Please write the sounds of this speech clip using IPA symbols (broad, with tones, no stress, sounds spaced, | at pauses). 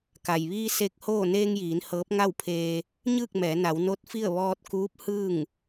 k a˩ j ʋ iː˧ s e˧ k̚ h oː˥˨ n eː˧ ŋ j iː˩˧ n h ɤː˧˥ p̚ ŋ a˥˨ w pʰ eː˧ | ɲ ɯː˥˨ k̚ m ɛː˩˧ n a˩˧ w n o˧˥ t̚ f i˥˨ ə̯ ʋ ɔː˧ t̚ k uː˧˥ p̚ h ɯː˥˨ ŋ